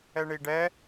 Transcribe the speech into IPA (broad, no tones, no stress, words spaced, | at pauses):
ɛɳiɖɛ